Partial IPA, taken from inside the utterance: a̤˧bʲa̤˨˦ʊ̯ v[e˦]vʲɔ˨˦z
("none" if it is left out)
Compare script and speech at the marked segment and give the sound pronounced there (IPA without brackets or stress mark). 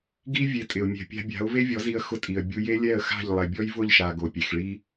e˦